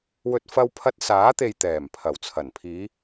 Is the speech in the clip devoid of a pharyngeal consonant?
yes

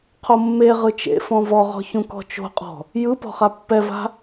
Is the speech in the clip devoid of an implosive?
yes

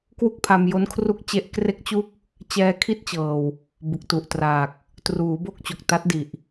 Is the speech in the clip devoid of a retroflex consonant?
yes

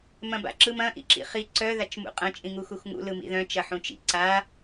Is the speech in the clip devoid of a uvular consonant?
no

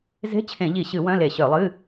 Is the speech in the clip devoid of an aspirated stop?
no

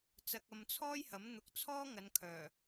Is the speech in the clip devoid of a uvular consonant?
yes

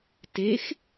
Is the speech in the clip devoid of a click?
yes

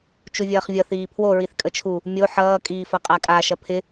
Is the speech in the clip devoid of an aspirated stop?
no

